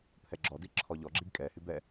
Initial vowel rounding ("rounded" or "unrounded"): unrounded